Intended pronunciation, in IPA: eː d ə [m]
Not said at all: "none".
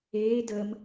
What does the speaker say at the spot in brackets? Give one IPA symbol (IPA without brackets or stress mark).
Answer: m